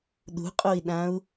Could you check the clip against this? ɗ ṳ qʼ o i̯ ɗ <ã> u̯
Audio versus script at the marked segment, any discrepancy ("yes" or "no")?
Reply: no